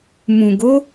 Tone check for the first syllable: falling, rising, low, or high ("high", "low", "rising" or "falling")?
low